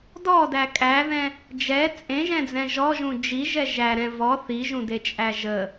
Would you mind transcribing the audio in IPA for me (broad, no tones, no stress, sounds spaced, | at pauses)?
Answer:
d ɔ d æ kʼ æ ð ɛ̃ | d͡ʒ ɛ t͡sʼ ẽ ʒ ɛ̃ d͡z ɛ̃ ʒ ɔ ʒ ũ d͡ʒ i ʒ ɛ ʒ æ ɾ ɛ̃ v ɔ θ i ʒ ũ d e t͡ʃʼ æ ʒ ə